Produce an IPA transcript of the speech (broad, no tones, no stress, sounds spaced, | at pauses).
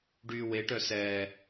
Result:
ɖ yː w e ʈ œ s ɛː